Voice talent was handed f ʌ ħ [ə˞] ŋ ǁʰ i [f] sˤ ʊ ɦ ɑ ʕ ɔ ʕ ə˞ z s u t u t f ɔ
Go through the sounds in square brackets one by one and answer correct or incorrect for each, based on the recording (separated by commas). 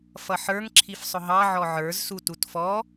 correct, correct